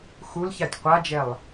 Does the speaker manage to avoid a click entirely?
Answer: yes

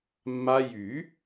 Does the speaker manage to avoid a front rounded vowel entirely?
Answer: no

